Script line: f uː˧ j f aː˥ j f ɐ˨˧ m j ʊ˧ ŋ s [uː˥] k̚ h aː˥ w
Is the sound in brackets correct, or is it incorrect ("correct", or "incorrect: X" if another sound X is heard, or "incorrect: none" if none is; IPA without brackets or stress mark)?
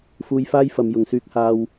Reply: incorrect: yː˥